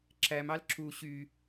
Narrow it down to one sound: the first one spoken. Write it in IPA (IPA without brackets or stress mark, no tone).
ǁ